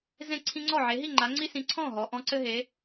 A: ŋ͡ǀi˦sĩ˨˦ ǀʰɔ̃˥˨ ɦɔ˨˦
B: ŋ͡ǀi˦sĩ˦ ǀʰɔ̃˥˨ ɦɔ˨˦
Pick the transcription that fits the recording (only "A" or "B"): A